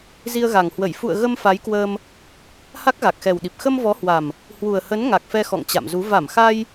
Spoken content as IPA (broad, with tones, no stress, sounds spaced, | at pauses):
z i˧ ə̯ ɣ a˨˩ ŋ h w ə˧˩ j f ṵ˧˨ ə̯ ɣ ə˧ m f a˨˦ j k w əː˧ m | h a˦˥ k̚ ɣ a˨˩ k̚ x ɛ˨˩ w ɗ i˨˩ p̚ x ə˧ m v ɔ˨˦ h w a˨˩ m | h w u˨˩ ə̯ h ə˨˦ n ŋ a˨˩ k̚ f ɛ˧ x ɔ̰˧˨ ŋ t͡ɕ a̰˧˨ m z u˨˦ v a˧˩ m x a˧ j